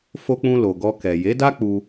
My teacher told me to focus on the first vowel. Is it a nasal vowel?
no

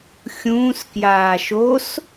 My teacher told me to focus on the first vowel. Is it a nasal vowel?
yes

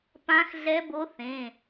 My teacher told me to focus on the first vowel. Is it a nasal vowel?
yes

